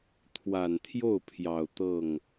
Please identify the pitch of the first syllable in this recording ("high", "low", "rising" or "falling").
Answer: low